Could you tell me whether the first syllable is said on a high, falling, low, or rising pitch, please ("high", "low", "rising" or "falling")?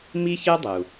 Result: high